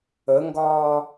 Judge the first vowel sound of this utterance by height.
mid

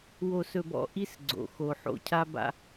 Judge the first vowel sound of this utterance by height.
mid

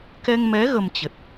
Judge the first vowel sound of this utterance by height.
mid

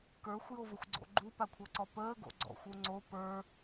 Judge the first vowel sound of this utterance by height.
mid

